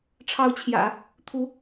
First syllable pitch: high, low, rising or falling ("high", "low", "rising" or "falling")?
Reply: rising